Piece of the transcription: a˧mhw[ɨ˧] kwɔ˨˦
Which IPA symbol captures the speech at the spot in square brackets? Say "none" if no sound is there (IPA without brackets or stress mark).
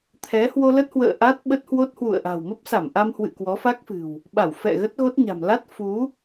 ɨ̰˧˨